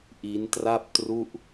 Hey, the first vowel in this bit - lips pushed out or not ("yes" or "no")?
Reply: no